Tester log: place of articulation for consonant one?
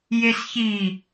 palatal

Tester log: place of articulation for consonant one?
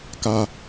velar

